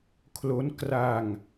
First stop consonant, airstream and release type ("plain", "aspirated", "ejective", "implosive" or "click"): aspirated